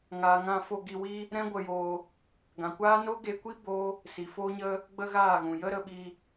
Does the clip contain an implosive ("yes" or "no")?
yes